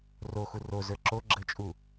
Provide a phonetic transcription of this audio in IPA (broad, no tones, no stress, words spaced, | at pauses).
roxu rozə˞ ǁo ɡ͡ǁət͡ʃʼu